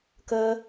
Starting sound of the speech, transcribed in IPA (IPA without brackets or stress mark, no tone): k